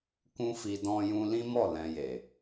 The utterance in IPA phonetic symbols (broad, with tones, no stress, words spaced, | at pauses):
kũ˦fi˧ dɔ̃˦jũ˦ lĩ˦mɔ˦˨ lɛ̃˧je˨